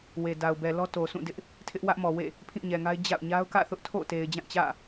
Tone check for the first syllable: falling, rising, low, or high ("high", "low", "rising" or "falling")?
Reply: low